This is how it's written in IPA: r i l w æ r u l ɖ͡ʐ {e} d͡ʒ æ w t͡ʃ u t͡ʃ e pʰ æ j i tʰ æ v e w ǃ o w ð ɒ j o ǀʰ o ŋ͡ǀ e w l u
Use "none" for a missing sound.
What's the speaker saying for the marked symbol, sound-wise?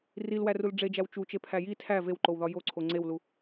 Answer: e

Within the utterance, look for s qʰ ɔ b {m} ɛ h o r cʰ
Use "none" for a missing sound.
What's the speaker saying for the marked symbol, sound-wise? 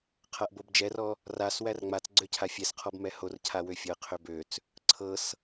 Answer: m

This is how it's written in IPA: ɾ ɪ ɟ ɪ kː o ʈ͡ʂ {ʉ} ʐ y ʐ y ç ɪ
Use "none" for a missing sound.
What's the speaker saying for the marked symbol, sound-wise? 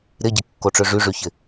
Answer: ø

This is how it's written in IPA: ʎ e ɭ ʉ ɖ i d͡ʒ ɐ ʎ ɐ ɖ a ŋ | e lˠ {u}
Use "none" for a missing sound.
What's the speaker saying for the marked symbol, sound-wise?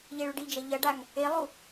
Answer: u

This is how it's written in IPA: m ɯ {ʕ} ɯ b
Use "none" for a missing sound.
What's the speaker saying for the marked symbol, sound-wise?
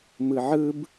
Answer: ʕ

